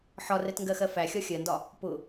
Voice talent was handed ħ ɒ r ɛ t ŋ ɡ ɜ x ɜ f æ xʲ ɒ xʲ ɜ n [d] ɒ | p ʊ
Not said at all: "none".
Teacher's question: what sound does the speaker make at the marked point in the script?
d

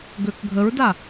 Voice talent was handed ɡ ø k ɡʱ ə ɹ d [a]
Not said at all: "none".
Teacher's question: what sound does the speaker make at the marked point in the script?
a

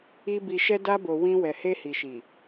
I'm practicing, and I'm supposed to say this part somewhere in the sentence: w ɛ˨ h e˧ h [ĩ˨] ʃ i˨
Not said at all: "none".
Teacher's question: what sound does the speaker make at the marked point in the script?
i˨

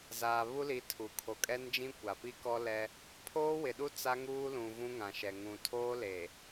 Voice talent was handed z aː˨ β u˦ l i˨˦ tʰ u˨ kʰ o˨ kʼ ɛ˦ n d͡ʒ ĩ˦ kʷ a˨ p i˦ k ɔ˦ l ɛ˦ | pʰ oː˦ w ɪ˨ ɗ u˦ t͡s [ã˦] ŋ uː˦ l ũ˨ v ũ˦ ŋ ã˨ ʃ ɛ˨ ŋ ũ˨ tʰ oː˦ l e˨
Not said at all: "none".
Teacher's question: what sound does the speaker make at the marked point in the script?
a˦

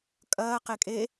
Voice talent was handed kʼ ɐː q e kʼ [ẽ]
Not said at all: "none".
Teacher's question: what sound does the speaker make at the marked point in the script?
e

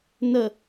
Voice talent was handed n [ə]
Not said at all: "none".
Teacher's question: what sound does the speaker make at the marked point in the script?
ə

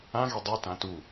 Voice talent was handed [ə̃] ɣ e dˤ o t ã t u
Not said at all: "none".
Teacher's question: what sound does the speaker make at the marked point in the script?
ã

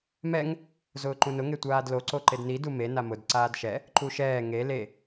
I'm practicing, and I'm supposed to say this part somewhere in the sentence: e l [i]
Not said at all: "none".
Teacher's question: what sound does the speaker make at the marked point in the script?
e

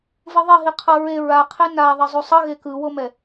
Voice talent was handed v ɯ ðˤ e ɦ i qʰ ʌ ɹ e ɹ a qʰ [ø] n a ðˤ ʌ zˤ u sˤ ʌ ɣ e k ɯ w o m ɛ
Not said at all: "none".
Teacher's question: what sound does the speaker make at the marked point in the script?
e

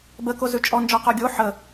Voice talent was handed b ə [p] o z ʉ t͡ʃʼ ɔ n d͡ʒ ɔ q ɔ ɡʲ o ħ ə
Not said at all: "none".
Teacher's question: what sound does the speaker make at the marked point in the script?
k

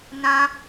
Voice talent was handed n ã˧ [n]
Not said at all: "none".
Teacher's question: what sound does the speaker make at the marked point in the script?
none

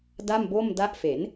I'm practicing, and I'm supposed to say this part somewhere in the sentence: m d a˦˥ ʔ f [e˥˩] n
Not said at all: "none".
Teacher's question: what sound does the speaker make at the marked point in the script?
e˩˦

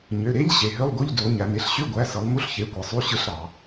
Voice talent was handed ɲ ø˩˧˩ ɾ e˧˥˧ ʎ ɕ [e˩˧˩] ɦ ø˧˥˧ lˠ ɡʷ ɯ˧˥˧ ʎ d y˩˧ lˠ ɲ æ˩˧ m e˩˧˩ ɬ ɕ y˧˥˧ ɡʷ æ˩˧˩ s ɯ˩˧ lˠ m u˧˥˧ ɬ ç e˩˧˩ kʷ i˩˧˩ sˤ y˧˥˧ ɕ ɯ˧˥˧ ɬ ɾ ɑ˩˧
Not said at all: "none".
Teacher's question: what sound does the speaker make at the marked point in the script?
e˩˧˩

